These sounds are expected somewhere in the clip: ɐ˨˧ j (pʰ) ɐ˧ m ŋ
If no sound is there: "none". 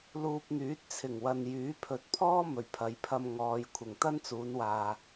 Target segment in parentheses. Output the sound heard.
pʰ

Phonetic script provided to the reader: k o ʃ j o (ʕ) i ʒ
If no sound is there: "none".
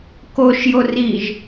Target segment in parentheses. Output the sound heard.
r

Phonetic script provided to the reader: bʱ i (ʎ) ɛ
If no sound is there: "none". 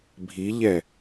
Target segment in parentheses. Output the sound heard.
ʎ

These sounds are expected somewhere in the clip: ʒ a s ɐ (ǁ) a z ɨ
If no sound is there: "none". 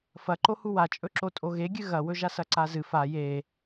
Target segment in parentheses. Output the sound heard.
ǀ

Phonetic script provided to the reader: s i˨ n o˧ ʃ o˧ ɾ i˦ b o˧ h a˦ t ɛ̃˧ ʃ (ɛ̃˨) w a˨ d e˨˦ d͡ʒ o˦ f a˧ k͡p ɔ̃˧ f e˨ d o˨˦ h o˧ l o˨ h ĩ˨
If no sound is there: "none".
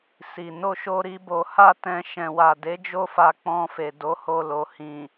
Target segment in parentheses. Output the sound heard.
ɛ̃˨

